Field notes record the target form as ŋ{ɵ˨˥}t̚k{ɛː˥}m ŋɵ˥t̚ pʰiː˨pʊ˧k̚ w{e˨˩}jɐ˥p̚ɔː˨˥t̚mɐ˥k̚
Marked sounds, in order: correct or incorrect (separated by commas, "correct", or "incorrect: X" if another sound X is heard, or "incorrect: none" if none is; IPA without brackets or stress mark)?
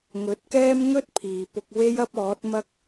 correct, correct, incorrect: e˥